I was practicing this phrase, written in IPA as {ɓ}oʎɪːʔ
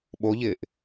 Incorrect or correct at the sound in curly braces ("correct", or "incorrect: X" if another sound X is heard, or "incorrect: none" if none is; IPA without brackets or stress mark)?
correct